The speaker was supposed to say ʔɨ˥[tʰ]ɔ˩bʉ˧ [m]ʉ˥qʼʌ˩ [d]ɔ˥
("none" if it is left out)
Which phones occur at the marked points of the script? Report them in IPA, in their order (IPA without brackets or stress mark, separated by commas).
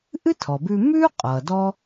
tʰ, m, d